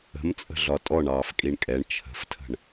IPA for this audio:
ə̤ m t͡sʼ ə̤ ɮ ɒ tʼ ɔ ɳ ɑː f kʼ i ɳ kʼ ɛ ɳ t͡ʃʰ ə̤ f tʰ ə̤ ɳ

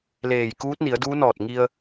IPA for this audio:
l eː˧˩ j k uː˧˥ t̚ n i˩˧ ə̯ d uː˧˥ n ɔː˧˩ t̚ ŋ i˧ ə̯

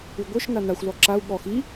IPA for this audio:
ʉ ɡʷ œ ʃ n a n a xʷ l ɔ ǁ a u̯ ɠ ɔ x i

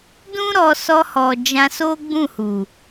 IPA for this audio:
d ũ˦ ɾ ɔ˧ s ɔ˧ h ɔ˨ d͡ʒ ã˧ s o˦ ɡ͡b ũ˦˨ h u˨

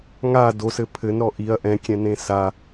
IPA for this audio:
ŋ a d o s ɘ pʰ ɘ n ɾ ɔ ʔ i ɐ̯ ʔ ɛ̃ kʲ ɛ̃ n ẽ s a

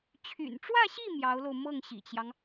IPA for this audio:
t͡ɕʰ y̰˨˩ n ʈ͡ʂ w ä˥˧ ɕ i˥˩ m j ɑ˧˥ ʊ̯ l o˧ ʊ̯ m ɤ˥˩ ŋ ɕ ḭ˨˩ t͡ɕ j ɑ˦ ŋ

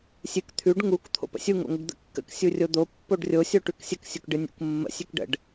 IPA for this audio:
sʲ ɨ k t̪ʰ ʉ ɖ ŋ u k t̪ʰ o̰ p ə̰ sʲ u ŋ o̰ ŋ ə ɖ d̪ ə̰ kː ə̰ k sʲ u rʲ o d̪ o pː o ɖ rʲ o sʲ o ʈ ʉ k sʲ ə k sʲ u k ɖ ɨ nʲ ṵ k mː ə̰ sʲ ʉ k ɖ ə̰ ɖ

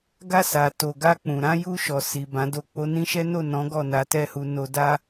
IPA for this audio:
ɡ a˧ s a˨ t o˨ ɡ a˧ k͡p ũ˨ ɾ ã˨˦ j u˧ ʃ ɔ˨ s i˨ b ã˨˦ d o˧ k͡p o˧ n ĩ˦ ʃ ɛ˦ n o˦˨ n ɔ̃˨˦ ɡ ɔ˦˨ n a˨˦ t ɛ˦˨ h u˧ n o˦ d a˦

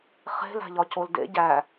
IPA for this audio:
χ e̤ l æ̤ ʎ ɒ c o l d ḛ ɟ æ

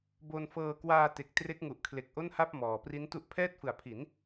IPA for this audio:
b o˧ n f ɤː˧ k w aː˧ t e˨˩ k̚ t r e˦˥ k̚ ŋ u˨˩ ʔ kʰ l e˨˩ k̚ ʔ o˥˩ n h a˥˩ p̚ m ɔː˨˩ p r i˦˥ n t u˦˥ ʔ pʰ ɛː˥˩ t̚ f ɯ˨˩ a̯ pʰ i˩˦ n

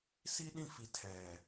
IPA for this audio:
s i˦ ɗ ĩ˦˨ f i˨ tʰ ɛ˨

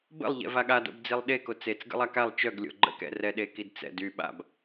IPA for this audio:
b ə̰ lˠ ʎ ɛ̰ v a ɠ a d o̰ b d͡z i lˠ ɗ e k o t͡s e t͡s ɡ ə̰ lˠ a k a lˠ t͡ʃ œ ɡ lʲ o̰ ɡ͡ǃ ə̰ k ɛ̰ r ɛ ɗ e k i d t͡s ɛ̰ d y ɓ a̰ b

